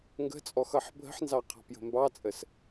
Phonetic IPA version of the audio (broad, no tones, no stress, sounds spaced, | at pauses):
ŋ ɡ ə̤ t͡sʼ ɔ x ʌ ħ bʱ ə̤ ħ n z ɑ qʰ ɑ̤ p j ə̤ m b ɑ t͡sʼ ə s